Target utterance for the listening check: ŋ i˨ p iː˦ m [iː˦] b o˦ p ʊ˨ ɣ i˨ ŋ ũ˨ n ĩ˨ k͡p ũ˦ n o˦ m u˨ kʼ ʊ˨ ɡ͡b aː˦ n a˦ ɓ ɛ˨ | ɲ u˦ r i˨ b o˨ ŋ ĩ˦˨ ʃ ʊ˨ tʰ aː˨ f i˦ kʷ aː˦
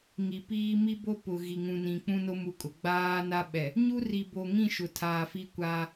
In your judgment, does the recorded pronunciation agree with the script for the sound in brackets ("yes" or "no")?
no